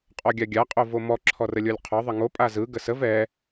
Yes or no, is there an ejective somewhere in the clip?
yes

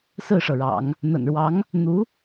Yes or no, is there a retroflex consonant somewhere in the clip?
yes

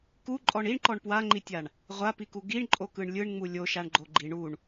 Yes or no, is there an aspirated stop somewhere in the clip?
no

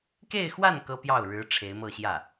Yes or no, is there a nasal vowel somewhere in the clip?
no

